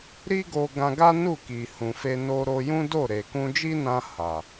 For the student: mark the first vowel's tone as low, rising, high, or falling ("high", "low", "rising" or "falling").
high